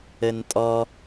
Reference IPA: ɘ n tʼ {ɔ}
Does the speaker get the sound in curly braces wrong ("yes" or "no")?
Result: no